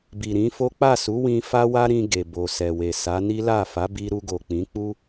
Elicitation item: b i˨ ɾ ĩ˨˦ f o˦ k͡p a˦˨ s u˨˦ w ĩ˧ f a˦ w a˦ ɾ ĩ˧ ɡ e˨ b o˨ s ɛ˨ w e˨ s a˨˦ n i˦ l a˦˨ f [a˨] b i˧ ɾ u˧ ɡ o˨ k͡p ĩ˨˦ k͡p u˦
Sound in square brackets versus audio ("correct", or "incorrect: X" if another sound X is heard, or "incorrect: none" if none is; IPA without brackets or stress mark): incorrect: a˨˦